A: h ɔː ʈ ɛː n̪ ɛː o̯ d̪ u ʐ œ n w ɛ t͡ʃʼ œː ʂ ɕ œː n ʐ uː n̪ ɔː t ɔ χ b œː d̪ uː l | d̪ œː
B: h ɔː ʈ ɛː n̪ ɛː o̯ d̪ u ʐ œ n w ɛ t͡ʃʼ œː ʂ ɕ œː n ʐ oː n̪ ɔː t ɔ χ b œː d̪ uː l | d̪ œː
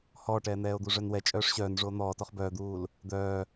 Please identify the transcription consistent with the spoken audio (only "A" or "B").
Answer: B